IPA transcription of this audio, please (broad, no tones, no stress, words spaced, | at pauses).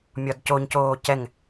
mʲɒdcoɲcoː cɛŋ